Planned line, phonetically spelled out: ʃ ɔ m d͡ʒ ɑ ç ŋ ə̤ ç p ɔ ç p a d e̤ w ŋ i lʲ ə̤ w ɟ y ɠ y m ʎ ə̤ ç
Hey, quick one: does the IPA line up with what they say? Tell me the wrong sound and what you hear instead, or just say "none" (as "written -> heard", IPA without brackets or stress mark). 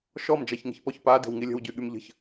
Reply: none